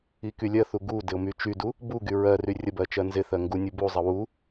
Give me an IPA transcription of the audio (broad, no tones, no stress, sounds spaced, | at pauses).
i k y lʲ ɜ θ u ɡ u d ɪ ʊ̯ m y t͡ʃ y d u | b u ɡ y ɹ ɜ r y rʲ ə b ɜ t͡ʃ ɜ n z ɪ θ ɜ ŋ ɡ u nʲ u b u zˤ ə w u